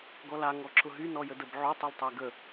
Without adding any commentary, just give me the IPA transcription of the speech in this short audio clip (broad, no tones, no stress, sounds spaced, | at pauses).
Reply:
ɡ ɔ l a ŋ ɔ ǁ ʊ ɦ y n ɔ j ə d ə b ʕ o tˤ ɘ l tˤ ɛ ɡ ə